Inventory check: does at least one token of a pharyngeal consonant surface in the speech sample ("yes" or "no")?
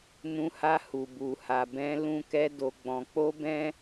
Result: no